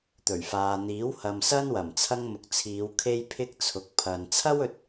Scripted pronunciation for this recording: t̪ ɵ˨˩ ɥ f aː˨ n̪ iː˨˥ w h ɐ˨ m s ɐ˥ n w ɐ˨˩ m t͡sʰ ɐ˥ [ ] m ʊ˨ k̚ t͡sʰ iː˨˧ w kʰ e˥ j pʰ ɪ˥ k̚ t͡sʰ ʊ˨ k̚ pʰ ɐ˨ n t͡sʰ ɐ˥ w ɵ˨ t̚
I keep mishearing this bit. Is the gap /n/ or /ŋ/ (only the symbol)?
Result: ŋ